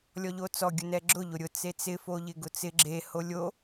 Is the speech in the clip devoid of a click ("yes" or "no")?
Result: no